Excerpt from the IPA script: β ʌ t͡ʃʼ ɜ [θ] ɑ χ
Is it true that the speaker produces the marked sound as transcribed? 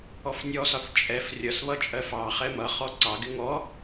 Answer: no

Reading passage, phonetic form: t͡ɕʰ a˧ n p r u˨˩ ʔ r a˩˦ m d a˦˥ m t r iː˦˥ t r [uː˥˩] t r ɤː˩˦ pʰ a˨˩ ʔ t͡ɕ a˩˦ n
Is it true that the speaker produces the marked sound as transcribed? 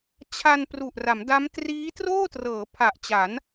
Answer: no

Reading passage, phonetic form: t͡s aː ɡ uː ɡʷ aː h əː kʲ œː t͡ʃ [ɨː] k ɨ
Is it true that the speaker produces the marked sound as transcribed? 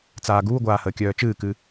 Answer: yes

